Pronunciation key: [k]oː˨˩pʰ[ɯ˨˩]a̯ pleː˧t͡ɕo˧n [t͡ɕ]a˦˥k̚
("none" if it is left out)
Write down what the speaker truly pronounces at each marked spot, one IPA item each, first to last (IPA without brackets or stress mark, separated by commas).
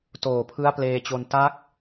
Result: t, ɯ˦˥, t